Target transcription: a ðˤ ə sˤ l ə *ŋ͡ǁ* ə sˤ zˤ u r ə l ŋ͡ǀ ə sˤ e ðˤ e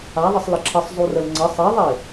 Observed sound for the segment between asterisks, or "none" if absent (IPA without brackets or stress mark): ǁʰ